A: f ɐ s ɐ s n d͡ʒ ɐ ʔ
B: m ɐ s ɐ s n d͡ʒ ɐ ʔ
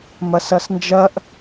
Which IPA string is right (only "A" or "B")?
B